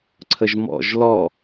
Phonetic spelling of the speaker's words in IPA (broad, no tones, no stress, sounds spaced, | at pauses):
ǀʰ ə ʒ m ɔ̰ ʒ l ɔ